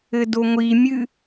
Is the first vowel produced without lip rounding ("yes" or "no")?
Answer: yes